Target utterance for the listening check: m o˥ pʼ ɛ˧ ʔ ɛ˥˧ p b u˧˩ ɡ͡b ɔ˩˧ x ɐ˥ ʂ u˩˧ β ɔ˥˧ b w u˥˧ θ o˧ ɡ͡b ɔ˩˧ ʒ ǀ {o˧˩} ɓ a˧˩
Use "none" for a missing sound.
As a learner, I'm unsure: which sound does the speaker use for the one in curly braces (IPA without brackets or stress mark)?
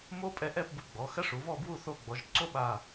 o˥